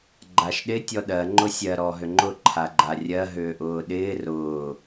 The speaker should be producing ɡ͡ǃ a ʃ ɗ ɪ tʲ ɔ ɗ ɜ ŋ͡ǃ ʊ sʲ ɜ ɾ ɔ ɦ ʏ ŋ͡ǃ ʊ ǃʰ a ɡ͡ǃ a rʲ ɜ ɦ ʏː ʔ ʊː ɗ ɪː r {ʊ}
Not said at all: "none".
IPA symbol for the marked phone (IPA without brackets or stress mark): ʊː